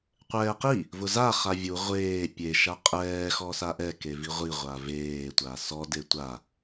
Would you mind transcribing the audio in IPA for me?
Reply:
qʷ ɛː q i | v ʊ z a χ a vʲ u ʁʷ eː pʲ e ʃ a qʼ ɛː x ɔ s a ʔ ɛ k e v i ʁʷ i ʁʷ a v eː tʷ a s ɔ d e tʷ a

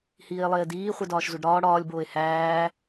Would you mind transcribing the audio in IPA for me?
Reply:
h iː e̯ lˠ eː d iː χʷ e d ɒː ʃ z u ɖ ɾ ɒː ɽ ɒː lʲ b oː e̯ h æː

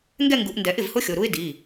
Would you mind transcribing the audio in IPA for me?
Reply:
ŋ ɡ ɛ˥˧ ŋ ɡ u˨˩˦ ʔ n d ɛ˨˩˦ ʔ ɪ˥˩ v h ʊ˦˥ xʲ o˩˧˩ ɾ u˦˥ ɪ̯ d i˩˧˩

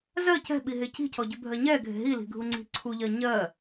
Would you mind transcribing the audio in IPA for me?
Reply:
z ɜ c ɛ̤ ɓ i ɦ e c i̤ c ɔ ɟ ʉ bʱ ɜ ɲ ɛ ɡʱ e̤ ɦ i l i̤ ɡʱ u ŋ͡ǀ i̤ ǀʰ u ʎ ɜ ɲ ɜ

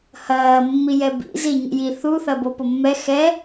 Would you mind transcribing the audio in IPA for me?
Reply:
h ɐː mː i j ɛ b ḭ z i ɲ ḭ j i θ u θ ɐ b o p o mː ɛ x ɛ

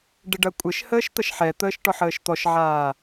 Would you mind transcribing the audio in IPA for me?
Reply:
ɖ ɪ ɖ ɐ kʷʼ ɪ ʃ h əː ʃ t̪ ɐ ʃ ħ ɛ t̪ əː ʃ ʈ ɔ ħ əː ʃ t̪ ɔ ʃ ʕ aː

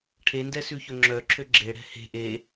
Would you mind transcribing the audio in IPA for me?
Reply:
ʈʰ e n d ɛ s ʉ ç ɵ ŋ͡ǁ œ ǁʰ ø ɡ͡ǁ e ɽ ɛ̤ h e̤ ʔ e

